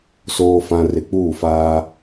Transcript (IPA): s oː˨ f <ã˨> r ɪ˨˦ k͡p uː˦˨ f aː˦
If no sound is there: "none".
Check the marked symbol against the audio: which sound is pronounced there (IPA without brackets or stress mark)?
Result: ã˨